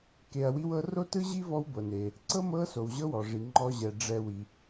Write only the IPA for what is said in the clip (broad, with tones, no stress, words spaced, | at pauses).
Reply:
ke˨ɐ̯ wi˦wɤ˦ ro˥tɯ˥ʑi˥ vɔ˦wbɤ˩ne˩ | ǀɤ˥mɤ˦so˩w ʑɤ˦wɔ˩ʐi˩ ŋ͡ǃɔ˨ ʑɛ˩ ɖ͡ʐɛ˨ wi˩